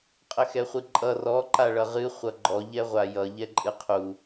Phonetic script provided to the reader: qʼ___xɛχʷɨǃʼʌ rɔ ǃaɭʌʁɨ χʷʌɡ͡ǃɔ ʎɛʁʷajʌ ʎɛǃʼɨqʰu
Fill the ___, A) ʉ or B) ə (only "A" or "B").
B